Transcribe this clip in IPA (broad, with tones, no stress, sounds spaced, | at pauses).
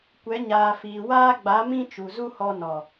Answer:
kʷ ɛ˨˦ ɲ aː˨ f iː˨ w aː˦ ɡ͡b a˨˦ m ĩ˦ t͡ʃ u˨ z u˦ h ɔ˧ n ɔ˨